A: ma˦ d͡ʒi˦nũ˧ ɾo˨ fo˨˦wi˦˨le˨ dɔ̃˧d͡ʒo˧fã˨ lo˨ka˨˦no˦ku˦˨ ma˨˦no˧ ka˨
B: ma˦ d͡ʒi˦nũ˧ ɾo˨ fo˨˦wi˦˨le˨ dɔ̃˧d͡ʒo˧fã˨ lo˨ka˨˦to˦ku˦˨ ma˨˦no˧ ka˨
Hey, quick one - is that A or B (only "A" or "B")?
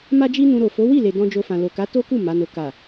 B